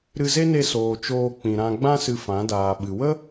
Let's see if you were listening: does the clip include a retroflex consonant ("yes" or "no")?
no